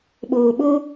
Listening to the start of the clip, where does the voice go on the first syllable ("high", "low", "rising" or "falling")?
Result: low